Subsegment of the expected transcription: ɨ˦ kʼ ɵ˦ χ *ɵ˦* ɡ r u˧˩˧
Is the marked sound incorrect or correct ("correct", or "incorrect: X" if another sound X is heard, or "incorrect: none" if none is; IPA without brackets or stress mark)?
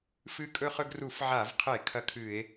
correct